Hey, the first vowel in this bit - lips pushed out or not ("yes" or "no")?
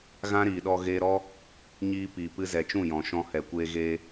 no